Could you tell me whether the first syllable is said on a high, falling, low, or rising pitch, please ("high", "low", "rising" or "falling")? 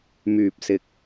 low